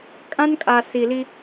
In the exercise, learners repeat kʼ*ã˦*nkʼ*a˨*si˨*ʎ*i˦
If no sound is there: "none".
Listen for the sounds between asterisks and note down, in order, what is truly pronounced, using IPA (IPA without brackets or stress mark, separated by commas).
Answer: ã˦, a˨, l